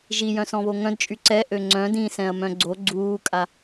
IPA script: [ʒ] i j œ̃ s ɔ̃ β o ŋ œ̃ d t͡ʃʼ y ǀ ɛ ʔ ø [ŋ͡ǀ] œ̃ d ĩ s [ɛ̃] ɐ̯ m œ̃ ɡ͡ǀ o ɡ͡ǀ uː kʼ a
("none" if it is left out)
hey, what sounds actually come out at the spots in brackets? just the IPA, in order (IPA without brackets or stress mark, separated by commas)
ʒ, ŋ͡ǀ, ɛ̃